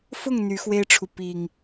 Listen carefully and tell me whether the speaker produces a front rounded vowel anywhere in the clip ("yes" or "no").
yes